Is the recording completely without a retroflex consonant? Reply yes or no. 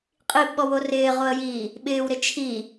yes